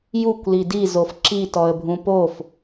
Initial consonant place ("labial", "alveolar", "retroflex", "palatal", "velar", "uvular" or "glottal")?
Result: palatal